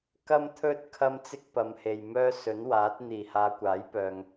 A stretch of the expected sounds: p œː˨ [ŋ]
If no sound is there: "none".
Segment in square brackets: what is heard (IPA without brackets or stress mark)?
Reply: ŋ